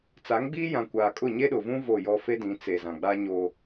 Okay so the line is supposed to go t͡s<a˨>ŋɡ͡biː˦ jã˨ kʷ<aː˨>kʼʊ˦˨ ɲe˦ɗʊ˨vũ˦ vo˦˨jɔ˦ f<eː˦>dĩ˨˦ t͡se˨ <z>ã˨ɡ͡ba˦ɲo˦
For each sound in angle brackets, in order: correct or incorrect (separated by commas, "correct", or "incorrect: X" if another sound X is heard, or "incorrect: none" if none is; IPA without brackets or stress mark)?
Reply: incorrect: a˨˦, correct, incorrect: e˦, correct